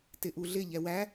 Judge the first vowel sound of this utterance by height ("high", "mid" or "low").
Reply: high